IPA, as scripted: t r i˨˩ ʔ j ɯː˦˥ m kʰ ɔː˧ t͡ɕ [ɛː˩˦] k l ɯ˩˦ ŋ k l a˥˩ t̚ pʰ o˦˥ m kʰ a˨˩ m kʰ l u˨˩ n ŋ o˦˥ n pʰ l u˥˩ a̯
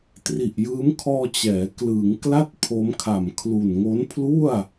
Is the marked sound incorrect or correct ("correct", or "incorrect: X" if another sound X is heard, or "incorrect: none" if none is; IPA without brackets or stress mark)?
correct